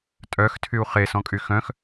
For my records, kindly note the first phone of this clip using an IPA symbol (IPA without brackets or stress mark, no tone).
tʼ